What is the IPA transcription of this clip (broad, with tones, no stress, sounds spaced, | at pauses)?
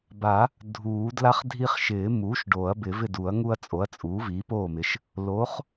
b a˨˩˦ | dʱ uː˨˩˦ d l a˦ χ dʱ i˦ χ ʃ ɪː˨˩˦ m uː˩˥ ʃ ɖ oː˨˩˦ ɐ̯ b ɪ˨˩˦ v ɪ˥˨ d u˨˩˦ ɐ̯ ŋ u˦ ɐ̯ t͡sʼ o˩˥ ɐ̯ t͡sʼ uː˩˥ v iː˩˥ p oː˥˨ m ɪ˩˥ ʃ | l o˩˥ χ